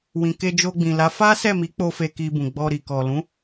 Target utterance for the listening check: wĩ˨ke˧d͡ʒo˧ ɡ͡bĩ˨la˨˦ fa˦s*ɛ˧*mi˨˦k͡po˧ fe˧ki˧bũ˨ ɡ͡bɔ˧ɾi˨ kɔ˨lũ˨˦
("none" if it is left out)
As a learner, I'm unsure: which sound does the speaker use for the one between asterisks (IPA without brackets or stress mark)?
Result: ɛ˦˨